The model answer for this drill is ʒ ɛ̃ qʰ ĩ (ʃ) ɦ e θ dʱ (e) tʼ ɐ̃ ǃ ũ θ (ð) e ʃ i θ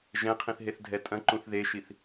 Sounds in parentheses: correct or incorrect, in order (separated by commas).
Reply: incorrect, incorrect, correct